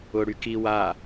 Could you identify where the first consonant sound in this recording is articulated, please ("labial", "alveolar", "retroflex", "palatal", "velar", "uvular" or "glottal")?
retroflex